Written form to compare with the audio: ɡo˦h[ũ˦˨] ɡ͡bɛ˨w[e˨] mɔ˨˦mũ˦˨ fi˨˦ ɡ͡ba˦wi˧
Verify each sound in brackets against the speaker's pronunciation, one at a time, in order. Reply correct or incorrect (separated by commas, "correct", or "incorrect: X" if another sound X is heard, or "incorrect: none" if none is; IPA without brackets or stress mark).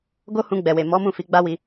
incorrect: ũ˧, correct